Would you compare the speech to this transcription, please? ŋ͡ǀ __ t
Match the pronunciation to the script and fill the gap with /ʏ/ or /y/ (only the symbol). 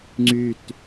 y